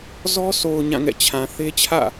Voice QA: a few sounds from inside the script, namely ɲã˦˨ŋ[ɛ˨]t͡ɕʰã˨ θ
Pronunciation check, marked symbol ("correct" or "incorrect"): incorrect